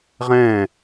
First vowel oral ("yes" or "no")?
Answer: no